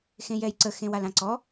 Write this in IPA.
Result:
x ẽ j ɛ j ǀ ə x ẽ w a l ã ǀ ɔ

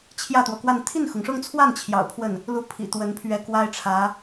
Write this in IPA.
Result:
t͡ɕʰ j ä˥˩ t̪ w ɔ˩ k w a˥˧ n t̪ʰ i˥˩ n x ʊ˩ ŋ ʂ ʊ˥˧ ŋ t͡sʰ w a˥˩ n t͡ɕʰ j ɑ̰˨˩ ʊ̯ pʰ w ə˥˩ n | l u˥˩ pʰ ḭ˨˩ t̪ w ə˧˥ n pʰ ɥ ɛ˧˥ k w a˥ ɪ̯ ʈ͡ʂʰ ä˧˥

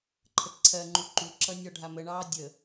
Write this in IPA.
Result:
ǃʰ ə t ǀʰ ɜ ŋ͡ǃ u ǃ u ǁ ʌ nʲ ɔ ɖʱ a m ə ɳ ɑː dʲ ə

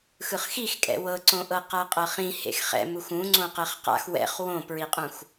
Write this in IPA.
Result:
x ɯ χ x i x kʼ ɛ̰ w ɤ ǀ õ ʔ ɤ q a qʼ ɤ χ ĩ h ḛ x χ ɛ̰ m u x ũ ŋ͡ǀ õ q ɛ χ q a̰ x w ɛ̰ χ w õ p ɹ i qʼ ũ x

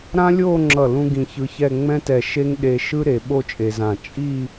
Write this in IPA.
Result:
ɾ ã˥ lʲ oː˥˧ ŋ͡ǁ ʌ˧˩ l ũ˥ ɡ ĩ˧ ç ɯ˧ ç ɛ˥˧ ŋ͡m ɛ̃˥ t ɛ˧˩ ʃ e˥ ŋ ɗ e˧ ʃ ɯ˥ ɾ e˩˧ ɓ o˥˧ t͡ʃʼ e˧ z ã˧˩ t͡ʃʼ i˥˧

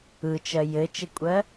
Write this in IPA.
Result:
ɯ t͡ʃ ɜ j ɘ t͡ʃ ɘ kʷʼ ɜ

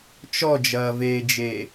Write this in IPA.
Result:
t͡ʃ ɔ d͡ʒ ɐː v eː d͡ʒ eː

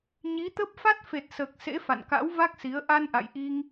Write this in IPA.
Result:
ɲ i˨˦ t̪ ə˦˥ p̚ f a˦˥ t̚ f e˨˩ t̚ s əː˨˩ k̚ s ḛ˧˥ f a̰˧˨ n k a̰˧˥ w v a˦˥ k̚ s i˨˦ ə̯ ʔ a˧ n ʔ a̰˧˨ j ʔ i˧ ŋ

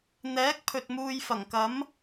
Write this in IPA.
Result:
n̪ ɛː˨˥ k̚ pʰ ɵ˨ t̚ m uː˧ j f ɐ˨˩ ŋ k ɐ˨˥ m

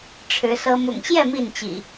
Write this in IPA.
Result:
ʈ͡ʂʰ ɻ̩˨˦ s ɤ˦ m ʊ̰˨˩ ŋ ɕ j ɛ˥˨ m i˥˨ n t͡ɕ ḭ˨˩

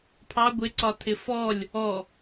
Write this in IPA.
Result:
pʰ ɑ ɡʷ ɪ ǀ ɒ tʰ ɪ f ɔ lʲ | ɔ

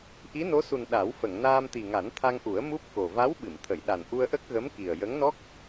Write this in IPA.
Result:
ʔ i˧˥ n o˧˥ s u˨˩ n ɗ a˨˩˦ w f ə˨˩˨ ŋ n aː˧ m t̪ i˨˩ ŋ a˨˩˦ n t̪ʰ a˧ ŋ ʔ u˨˩˦ ə̯ m u˦˥ p̚ k o˨˩ v a˧˥ w ɓ ɨ˨˩˨ m t̪ʰ ə˨˩˨ j ɗ a˨˩ n ʔ u˧ ə̯ ʔ ə˦˥ k̚ ɣ ə˧˥ m k i˨˩ ə̯ j ə˧˥ ŋ n ɔ˦˥ k̚

